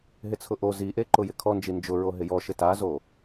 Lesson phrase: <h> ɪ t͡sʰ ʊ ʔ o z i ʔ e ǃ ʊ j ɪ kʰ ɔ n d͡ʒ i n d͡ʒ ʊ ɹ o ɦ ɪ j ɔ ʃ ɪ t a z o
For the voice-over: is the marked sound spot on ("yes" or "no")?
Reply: no